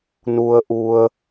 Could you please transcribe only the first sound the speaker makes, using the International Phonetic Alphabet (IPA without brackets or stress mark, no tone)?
n